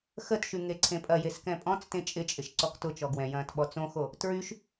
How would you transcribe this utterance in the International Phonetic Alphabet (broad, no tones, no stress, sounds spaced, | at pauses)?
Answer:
x ə t ʃ y ŋ e ǀʰ ẽ pʼ ɐ j e s k ɛ̃ pʼ ɔ̃ t͡s t ẽ t͡ʃʼ ɪ t͡ʃʼ ɪ ʃ ǀ ɔ k t ʊ t͡ʃ ɔ ɡ w ɛ̃ j ɐ̃ː t ɓ ɔ t͡s õ x o | t ɹ y ʃ